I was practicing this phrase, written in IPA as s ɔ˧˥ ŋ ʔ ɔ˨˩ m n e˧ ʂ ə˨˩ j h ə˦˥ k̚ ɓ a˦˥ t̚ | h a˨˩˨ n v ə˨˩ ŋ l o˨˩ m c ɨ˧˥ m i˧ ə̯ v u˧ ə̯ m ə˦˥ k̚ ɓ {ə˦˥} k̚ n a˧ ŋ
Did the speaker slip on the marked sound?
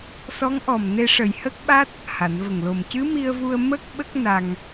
no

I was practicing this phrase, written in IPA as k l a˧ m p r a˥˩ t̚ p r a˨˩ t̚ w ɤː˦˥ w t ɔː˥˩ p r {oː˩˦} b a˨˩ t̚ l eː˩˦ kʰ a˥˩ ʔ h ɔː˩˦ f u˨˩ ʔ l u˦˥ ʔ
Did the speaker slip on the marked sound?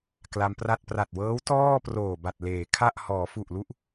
yes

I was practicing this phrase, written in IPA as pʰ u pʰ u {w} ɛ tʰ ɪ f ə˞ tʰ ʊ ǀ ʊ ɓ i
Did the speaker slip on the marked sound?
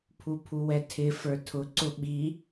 no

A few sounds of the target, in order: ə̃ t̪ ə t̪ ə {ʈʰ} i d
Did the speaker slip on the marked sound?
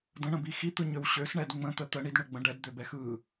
yes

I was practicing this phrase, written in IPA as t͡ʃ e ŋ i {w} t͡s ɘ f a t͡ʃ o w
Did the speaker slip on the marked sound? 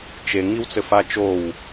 no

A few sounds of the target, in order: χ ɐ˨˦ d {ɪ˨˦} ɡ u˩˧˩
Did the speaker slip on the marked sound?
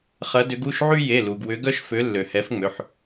yes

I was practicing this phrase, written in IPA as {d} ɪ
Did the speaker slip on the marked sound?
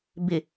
yes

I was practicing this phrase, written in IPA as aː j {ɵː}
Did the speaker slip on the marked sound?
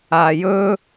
no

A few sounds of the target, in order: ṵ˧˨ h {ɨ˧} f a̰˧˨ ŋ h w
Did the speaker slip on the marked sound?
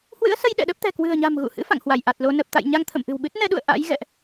yes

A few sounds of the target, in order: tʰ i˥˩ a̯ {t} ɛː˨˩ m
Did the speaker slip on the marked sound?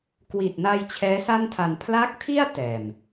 no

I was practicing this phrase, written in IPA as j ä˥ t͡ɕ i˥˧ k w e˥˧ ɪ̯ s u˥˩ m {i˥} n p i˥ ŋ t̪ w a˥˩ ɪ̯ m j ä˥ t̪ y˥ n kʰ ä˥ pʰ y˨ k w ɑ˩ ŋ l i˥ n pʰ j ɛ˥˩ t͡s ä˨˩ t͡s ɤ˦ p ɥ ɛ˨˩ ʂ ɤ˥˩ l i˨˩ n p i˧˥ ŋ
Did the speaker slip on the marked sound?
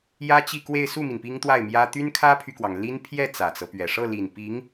yes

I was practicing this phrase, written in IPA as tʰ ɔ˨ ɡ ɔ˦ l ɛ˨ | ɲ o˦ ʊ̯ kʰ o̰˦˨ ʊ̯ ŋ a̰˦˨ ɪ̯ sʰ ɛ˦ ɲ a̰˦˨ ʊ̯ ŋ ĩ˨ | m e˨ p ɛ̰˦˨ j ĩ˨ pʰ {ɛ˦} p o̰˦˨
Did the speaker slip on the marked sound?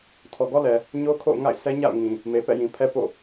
no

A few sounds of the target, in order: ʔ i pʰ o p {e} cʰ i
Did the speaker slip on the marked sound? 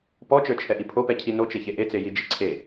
yes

